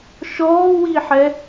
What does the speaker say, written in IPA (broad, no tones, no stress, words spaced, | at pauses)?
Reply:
ʃɔːwiħɛ